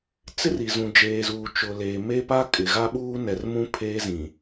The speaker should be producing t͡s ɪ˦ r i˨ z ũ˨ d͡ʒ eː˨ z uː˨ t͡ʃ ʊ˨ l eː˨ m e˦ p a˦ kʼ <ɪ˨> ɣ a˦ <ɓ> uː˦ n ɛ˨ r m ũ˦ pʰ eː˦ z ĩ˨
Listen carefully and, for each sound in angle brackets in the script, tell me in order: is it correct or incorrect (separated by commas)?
correct, correct